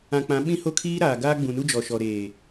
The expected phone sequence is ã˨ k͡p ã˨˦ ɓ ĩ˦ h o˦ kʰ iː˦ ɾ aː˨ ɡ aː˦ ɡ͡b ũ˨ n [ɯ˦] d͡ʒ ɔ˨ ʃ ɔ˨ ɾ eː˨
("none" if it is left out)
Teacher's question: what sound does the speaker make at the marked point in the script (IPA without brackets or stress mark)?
u˦